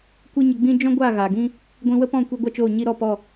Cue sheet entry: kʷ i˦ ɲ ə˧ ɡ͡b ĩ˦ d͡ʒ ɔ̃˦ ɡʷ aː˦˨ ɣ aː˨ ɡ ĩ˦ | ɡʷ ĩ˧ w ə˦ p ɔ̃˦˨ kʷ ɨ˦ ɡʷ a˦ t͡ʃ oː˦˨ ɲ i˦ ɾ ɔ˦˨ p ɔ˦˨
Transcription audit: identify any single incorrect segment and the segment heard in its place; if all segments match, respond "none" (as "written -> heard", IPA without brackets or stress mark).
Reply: ɨ˦ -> i˦